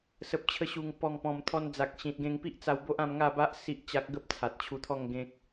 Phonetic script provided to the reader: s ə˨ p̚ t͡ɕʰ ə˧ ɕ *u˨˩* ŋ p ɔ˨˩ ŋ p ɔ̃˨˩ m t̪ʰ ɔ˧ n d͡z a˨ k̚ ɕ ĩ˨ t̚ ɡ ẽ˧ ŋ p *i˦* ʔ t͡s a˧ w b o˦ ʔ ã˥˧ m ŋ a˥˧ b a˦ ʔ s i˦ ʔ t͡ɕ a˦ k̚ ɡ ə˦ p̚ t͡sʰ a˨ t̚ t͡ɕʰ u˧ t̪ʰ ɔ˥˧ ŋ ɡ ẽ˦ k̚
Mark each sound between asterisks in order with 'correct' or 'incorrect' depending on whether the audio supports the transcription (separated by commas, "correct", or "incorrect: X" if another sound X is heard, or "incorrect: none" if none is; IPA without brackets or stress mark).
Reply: correct, correct